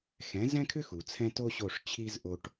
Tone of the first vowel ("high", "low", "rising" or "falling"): rising